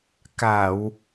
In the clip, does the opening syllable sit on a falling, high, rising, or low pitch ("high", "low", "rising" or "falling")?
low